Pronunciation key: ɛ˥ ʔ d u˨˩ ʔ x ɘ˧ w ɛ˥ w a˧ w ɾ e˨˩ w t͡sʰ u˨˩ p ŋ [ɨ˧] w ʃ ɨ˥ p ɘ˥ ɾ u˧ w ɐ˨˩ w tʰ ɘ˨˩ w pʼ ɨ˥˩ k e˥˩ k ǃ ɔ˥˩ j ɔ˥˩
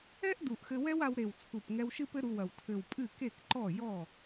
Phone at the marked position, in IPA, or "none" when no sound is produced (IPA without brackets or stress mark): ɛ˧